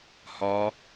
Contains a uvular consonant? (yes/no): no